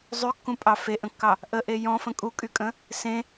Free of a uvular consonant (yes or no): yes